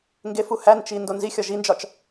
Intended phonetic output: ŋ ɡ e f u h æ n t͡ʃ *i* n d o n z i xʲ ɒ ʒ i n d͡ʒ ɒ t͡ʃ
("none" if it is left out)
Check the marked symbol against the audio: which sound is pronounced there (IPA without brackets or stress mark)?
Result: i